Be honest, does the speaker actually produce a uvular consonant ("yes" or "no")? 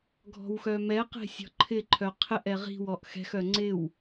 yes